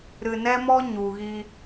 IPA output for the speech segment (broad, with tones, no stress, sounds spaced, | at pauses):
ɾ ɨ˨ n ɛ˦ m ɔ˦ ɲ u˨ ɣ i˧